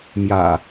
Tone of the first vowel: low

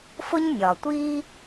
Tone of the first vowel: high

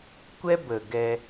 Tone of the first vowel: high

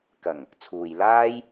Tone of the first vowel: low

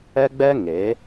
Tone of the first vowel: high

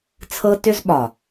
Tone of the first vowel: high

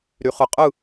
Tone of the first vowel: low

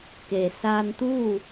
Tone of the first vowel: low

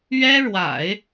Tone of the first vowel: high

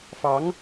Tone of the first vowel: rising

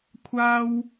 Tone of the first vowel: high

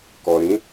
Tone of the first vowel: low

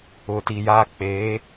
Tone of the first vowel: low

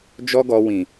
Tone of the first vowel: high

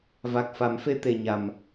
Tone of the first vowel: low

